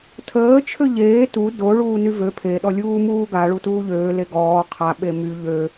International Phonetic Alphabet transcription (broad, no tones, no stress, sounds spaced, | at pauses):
tʰ əː t͡ʃʰ ø ʎ eː t u d o ɭ uː n y v ø pʰ e ɗ ɔ lʲ uː m uː ɡ a ɭ u t uː ʎ øː l e ɡ ɔː qʰ a ɓ e m y ʎ ø